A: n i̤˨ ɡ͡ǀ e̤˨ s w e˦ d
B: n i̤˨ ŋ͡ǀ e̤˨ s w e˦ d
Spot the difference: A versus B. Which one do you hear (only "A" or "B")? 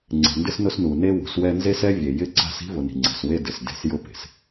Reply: B